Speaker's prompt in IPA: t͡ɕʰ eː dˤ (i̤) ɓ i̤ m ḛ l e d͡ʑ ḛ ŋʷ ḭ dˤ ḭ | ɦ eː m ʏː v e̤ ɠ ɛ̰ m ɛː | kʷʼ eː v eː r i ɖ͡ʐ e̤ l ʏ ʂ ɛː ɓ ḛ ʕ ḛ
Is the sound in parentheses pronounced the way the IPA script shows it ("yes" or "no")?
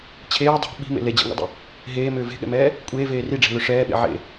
no